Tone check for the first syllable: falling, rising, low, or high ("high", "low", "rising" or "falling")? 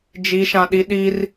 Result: high